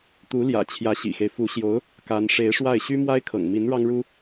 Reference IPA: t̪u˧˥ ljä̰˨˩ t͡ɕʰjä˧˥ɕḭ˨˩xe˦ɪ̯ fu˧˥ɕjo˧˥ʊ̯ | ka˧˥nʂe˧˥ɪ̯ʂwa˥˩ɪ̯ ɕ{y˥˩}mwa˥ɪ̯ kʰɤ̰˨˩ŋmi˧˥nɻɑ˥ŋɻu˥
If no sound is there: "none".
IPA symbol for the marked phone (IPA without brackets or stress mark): y˥